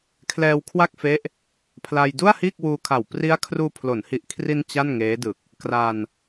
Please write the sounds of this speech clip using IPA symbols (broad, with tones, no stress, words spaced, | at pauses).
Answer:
kʰlɛː˧wkʰwa˥˩k̚fe˦˥ʔ | pʰla˧j du˥˩a̯hiː˥˩k̚wuː˧kʰa˨˩w pri˦˥a̯ kʰruː˧pʰlo˩˦nhi˨˩ʔkʰri˧n t͡ɕa˥˩nŋeː˦˥dɯ˨˩k̚ | kra˧n